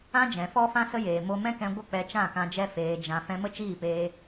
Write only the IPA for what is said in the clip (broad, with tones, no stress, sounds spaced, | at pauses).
ã˦ d͡ʒ ɛ̃˨ f ɔ˦ f ã˦ s ə˦ j eː˨ m o˧ m ɛ̃˦ k ɛ̃˧ ɡʷ ə˦˨ k͡p ɛ˧ t͡ʃ ã˦˨ k ã˧ d͡ʒ ɛ˦ f eː˧ d͡ʒ ã˧ f ɛ̃˧ m ə˦ t͡ʃ iː˦˨ p eː˧